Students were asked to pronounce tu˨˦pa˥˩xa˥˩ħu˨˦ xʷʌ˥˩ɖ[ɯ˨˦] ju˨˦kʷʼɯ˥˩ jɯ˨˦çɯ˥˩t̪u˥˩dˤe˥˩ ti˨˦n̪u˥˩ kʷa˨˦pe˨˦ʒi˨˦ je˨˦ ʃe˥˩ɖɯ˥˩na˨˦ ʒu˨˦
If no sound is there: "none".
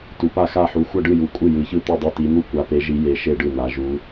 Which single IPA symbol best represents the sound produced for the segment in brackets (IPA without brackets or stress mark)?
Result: ɯ˥˩